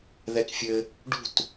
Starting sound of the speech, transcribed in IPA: ð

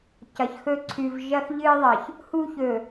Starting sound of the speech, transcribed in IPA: c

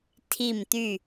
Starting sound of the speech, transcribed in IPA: tʰ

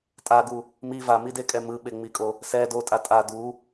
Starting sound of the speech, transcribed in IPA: tʼ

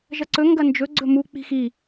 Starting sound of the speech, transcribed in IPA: ʒ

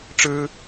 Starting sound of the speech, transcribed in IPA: ʈ͡ʂ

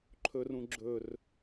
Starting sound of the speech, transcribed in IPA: ǃʰ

